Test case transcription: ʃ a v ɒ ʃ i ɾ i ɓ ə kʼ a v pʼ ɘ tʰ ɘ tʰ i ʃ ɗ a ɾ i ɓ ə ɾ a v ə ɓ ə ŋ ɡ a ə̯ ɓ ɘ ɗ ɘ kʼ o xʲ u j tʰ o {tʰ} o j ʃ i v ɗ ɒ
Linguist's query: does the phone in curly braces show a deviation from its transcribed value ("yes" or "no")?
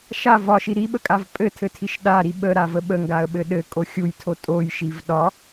yes